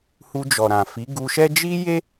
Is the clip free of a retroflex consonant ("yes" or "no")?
yes